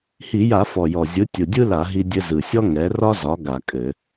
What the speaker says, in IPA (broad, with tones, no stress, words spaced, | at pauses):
hi˧˩˧ja˧˩˧ fɔ˨˩jɔ˨˩ zʲɯ˩˥ tʲɯ˨˩dʲɯ˥la˧˩˧ ɦi˧dʲɘ˧zɯ˨˩sʲɔ˥ ŋɛ˩˥rɒ˥zɒ˩˥ ɡa˧˩˧kʼɘ˧˩˧